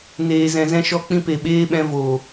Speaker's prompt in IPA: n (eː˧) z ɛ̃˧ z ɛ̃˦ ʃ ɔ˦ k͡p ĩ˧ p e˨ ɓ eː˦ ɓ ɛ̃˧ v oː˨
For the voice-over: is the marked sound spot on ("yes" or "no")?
yes